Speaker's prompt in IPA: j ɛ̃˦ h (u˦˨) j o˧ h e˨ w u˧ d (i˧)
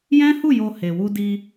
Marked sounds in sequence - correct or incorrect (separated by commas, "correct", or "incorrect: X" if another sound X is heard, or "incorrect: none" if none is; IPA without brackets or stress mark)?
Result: correct, correct